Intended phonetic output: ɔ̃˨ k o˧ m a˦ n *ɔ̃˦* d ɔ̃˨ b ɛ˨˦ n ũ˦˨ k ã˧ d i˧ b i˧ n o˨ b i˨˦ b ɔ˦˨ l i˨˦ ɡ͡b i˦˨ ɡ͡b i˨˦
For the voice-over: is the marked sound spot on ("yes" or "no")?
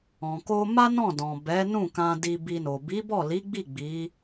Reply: no